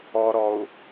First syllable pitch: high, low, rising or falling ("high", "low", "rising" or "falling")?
low